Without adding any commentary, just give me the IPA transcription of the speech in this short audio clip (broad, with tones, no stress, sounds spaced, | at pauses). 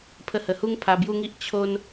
pʰ ə˧ h ə˨˩ h u˦ ŋ pʰ a˧ b j u˦ ŋ i˦ ʔ t͡ɕʰ o˦ n